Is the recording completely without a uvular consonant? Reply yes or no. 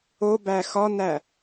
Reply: yes